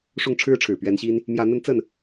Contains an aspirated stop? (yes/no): yes